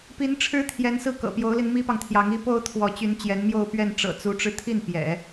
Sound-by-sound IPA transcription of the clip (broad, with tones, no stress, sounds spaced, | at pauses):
p i˧˥ n ʈ͡ʂʰ ɻ̩˥ t̪ʰ j ɛ˧˥ n s ɹ̩˥˩ k ɤ̰˨˩ p j o˧˥ ʊ̯ l i˧ n m i˥ p ɑ˨ ŋ t̪ʰ j ɑ˧˥ ŋ i˥ p o˥ ʊ̯ t̪ʰ w ɔ˧˥ t͡ɕ y˧˥ n t͡ɕ j ɛ˧˥ n m j o˥˧ ʊ̯ p ɥ ɛ˥˩ n ʈ͡ʂ ɤ̰˨˩ t͡s u˧˥ ʈ͡ʂ ɻ̩˧ t̪ʰ i˥˩ n p j ɛ̰˨˩˦